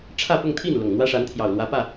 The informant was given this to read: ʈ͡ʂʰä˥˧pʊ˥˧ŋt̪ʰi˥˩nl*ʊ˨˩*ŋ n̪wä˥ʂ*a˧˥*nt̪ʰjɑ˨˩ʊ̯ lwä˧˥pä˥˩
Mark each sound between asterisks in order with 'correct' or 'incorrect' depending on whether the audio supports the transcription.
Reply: correct, correct

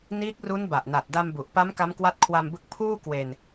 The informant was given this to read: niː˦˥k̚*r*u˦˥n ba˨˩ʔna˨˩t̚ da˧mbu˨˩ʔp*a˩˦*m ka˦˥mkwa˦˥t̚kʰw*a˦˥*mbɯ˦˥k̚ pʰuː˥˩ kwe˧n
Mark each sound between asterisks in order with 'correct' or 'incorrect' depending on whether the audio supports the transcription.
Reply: correct, incorrect: a˦˥, incorrect: a˧

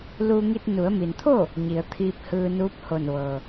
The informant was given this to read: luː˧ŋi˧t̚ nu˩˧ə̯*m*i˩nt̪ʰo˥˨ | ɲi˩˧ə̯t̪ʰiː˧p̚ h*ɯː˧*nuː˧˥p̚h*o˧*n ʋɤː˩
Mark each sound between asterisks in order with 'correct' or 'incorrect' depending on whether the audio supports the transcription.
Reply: correct, correct, incorrect: o˧˩

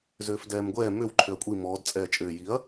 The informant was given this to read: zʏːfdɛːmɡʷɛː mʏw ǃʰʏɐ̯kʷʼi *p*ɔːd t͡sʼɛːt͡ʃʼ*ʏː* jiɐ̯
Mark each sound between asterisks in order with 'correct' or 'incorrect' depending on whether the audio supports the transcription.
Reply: incorrect: m, correct

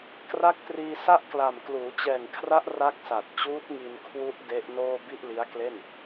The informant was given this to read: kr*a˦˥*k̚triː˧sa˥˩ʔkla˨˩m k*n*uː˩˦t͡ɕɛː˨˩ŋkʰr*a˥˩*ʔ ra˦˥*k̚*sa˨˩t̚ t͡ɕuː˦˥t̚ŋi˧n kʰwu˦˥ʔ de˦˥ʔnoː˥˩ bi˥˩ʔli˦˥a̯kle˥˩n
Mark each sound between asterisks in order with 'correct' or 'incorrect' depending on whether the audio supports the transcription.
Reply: correct, incorrect: l, incorrect: a˦˥, correct

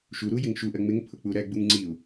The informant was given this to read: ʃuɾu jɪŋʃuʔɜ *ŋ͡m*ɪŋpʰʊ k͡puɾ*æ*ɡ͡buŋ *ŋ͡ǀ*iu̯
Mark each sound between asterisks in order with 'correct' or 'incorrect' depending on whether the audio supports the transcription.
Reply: correct, correct, correct

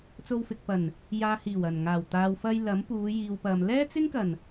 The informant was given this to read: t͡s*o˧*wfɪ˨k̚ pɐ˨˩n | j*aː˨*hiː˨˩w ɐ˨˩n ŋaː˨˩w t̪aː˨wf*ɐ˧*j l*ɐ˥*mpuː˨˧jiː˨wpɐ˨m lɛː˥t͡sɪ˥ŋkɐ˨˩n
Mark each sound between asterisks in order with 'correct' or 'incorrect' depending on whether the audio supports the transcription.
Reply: correct, correct, correct, incorrect: ɐ˨˥

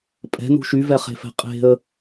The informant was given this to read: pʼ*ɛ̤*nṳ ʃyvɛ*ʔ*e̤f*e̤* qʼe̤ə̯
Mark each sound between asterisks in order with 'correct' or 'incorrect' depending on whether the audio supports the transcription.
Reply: correct, incorrect: χ, incorrect: ɛ̤

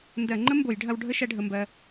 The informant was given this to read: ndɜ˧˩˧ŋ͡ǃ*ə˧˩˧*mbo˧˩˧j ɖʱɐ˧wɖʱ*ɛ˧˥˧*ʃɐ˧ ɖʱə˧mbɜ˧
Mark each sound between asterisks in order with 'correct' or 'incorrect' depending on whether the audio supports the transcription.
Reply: incorrect: ə˦˥, incorrect: ə˧˥˧

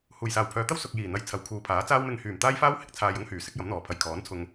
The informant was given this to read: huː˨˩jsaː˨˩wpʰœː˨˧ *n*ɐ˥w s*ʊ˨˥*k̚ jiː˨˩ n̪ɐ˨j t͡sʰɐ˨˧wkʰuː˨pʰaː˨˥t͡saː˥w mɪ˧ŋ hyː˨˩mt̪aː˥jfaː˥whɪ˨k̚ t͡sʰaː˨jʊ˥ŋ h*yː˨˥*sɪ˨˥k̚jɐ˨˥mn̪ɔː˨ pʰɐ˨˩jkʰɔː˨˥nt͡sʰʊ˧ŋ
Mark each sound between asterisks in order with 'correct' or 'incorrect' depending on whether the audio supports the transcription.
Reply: incorrect: t̪, incorrect: ʊ˨, incorrect: yː˨˩

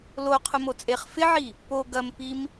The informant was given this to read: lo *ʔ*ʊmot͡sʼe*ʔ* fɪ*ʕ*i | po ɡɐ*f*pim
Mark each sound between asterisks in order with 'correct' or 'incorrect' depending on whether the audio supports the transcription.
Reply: incorrect: qʰ, incorrect: χ, correct, incorrect: m

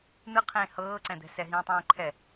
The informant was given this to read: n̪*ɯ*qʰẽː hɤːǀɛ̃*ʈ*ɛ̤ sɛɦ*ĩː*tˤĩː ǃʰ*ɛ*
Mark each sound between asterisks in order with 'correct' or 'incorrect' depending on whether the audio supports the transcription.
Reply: correct, incorrect: d̪, correct, correct

